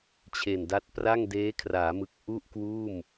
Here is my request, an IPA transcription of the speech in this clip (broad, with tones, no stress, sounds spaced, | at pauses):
t͡ɕʰ e˨˩ n d a˦˥ t̚ p r a˥˩ ŋ d eː˦˥ kʰ r aː˩˦ m ɯ˨˩ k̚ ʔ u˥˩ ʔ k w uː˥˩ m